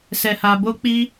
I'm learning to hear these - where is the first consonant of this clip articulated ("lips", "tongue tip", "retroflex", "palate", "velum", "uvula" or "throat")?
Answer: tongue tip